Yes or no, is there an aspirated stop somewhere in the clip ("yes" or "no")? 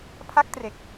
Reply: yes